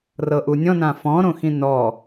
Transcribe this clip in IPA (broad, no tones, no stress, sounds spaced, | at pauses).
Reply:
r ɤ ʔ u nʲ ɔ̃ n ã f ɔ̃ ɾ õ x ĩ n ɔ